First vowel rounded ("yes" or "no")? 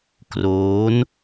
yes